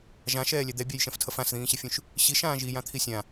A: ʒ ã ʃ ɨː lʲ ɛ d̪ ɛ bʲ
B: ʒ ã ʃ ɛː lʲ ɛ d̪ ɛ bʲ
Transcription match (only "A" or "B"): B